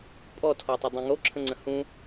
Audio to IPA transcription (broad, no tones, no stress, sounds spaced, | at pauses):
pʼ ɔ tʰ ɔ tˤ ə dˤ ẽ ŋ o ǁʰ ə̃ ŋ͡ǀ ə̃ h ũ